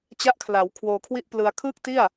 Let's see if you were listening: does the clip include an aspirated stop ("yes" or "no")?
yes